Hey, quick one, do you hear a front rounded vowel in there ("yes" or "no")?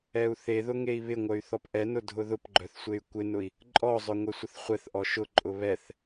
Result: yes